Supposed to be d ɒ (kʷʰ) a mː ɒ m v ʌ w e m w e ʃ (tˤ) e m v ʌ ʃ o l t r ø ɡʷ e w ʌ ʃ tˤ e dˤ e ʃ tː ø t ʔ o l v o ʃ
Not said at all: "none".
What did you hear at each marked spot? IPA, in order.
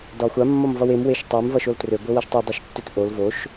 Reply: xʷ, tˤ

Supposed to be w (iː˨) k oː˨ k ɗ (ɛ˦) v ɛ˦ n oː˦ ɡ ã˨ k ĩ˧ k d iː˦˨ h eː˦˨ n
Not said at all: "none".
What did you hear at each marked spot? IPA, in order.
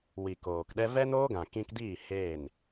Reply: i˨, ɛ˦

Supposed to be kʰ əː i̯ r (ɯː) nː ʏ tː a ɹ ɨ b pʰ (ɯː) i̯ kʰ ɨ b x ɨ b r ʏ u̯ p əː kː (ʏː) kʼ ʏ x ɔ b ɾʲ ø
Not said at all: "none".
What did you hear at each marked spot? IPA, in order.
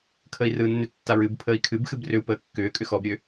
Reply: ɯː, əː, ʏː

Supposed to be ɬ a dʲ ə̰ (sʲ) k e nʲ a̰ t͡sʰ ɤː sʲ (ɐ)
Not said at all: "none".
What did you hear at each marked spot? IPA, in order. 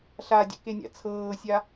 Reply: none, a

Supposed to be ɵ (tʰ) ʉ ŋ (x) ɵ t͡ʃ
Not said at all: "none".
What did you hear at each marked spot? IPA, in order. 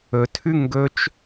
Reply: tʰ, ɡ

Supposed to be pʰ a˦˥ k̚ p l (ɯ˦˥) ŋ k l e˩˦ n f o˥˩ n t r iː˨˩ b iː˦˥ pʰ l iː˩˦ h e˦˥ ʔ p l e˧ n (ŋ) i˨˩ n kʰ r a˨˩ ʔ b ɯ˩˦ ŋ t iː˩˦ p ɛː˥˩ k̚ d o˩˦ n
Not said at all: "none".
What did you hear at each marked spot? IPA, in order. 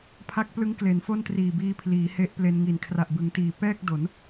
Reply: ɯ˦˥, ŋ

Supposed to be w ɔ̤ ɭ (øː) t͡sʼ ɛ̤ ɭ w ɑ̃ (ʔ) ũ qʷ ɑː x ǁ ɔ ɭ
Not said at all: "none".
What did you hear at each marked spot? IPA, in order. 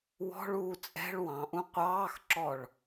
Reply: uː, ʔ

